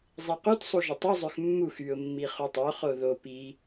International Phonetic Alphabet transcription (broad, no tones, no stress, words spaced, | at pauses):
zˤequtsˤu ʒətˤuzˤøx mːux yʊ̯mːi χutˤoχo ðo pi